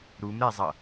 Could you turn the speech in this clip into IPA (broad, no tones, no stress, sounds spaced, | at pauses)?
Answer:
ɾ u m ɾ ɛ zˤ ʌ